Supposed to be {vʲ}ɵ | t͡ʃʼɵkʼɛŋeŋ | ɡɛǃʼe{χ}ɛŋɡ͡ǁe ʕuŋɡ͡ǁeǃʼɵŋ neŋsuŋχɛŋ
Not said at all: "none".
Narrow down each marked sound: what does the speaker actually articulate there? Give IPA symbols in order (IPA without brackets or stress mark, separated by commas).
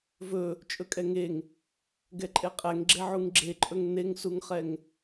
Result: v, qʼ